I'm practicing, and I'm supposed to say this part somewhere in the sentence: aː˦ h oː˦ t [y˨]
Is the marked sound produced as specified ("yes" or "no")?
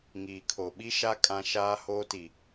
no